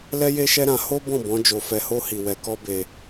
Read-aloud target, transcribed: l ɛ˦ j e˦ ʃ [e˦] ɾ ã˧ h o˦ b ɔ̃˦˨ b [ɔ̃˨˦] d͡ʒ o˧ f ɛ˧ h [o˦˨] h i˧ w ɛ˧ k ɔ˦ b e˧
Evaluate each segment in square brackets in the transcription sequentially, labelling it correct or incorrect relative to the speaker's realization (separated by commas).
incorrect, correct, incorrect